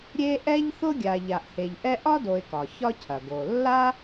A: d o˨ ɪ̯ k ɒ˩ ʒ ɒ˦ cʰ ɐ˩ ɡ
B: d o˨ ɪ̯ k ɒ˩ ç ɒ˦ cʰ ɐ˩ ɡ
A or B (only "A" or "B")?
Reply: B